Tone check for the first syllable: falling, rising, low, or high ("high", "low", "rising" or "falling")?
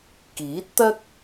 rising